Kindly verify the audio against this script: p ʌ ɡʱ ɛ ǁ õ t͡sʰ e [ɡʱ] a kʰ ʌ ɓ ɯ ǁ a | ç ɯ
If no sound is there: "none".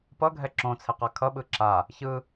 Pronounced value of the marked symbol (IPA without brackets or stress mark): q